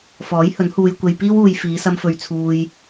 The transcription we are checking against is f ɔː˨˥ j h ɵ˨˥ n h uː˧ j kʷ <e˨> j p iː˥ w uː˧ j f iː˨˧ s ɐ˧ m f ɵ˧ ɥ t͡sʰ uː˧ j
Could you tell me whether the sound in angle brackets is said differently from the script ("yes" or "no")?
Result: yes